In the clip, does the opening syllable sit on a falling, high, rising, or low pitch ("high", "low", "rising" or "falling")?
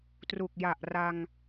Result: low